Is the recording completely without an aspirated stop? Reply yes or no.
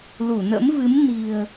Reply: yes